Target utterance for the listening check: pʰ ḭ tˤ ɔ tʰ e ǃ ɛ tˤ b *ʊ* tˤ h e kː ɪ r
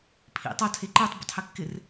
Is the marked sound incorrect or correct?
correct